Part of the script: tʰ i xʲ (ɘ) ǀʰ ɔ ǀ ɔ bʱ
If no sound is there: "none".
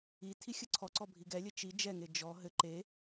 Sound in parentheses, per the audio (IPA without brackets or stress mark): ɘ